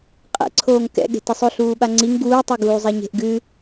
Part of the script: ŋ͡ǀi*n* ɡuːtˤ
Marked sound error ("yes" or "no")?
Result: yes